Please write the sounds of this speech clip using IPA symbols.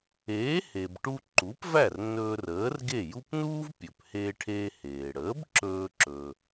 eː˩˥ h e˩ b ʈ u˧ ǃ u˩˥ p v æ˥˩ r n ɵː˧ r əː˩˥ r ɡ e˥˩ j u˥ p n uː˥ v pʲ ɵ˩ p h eː˧ ʈʰ eː˧ h eː˩ ɽ əː˩˥ b ǁ ɵː˧ ǁ ɵ˧

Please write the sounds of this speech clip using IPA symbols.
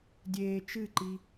dʲ eː t͡ʃ ɨ ǃ i

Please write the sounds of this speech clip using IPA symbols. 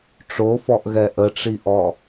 ʈ͡ʂ o f ɔ ʔ ɣ ɛ ʔ ə ʈ͡ʂ i ʔ ɔ

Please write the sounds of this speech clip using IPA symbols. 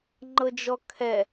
ŋ͡ǃ ɤ d͡ʒ ɔ kʰ ɛ

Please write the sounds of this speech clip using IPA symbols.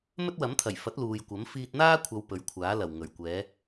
m ɵ˥ t̚ w ɐ˨˥ m t̪ʰ ɐ˨˩ j f ɐ˨˥ t̚ l uː˨ j kʷ ɐ˨˥ m f iː˧ t̚ n̪ aː˥ kʷʰ ɐ˨˧ w p ɵ˨˥ ɥ kʷʰ aː˨˥ l ɐ˨˩ w ŋ ɵ˨˩ ɥ kʷ ɛː˨˥

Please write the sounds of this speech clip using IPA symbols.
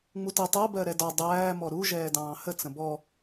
ŋ͡m u t ɛ tˤ ɜ b ɜ ɾ ɛ d ɒ dˤ æː m ɔ ɾ u ʒ ɛː d ɑ̃ː h ə t͡s ə̃ b ɔ

